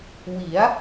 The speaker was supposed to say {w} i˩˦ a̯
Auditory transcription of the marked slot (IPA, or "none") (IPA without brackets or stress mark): w